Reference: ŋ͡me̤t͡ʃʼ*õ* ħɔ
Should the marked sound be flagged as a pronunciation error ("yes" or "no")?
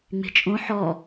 no